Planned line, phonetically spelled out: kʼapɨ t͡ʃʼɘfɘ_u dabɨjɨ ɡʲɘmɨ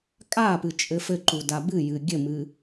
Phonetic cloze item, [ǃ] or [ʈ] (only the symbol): ǃ